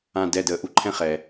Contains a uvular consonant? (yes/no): yes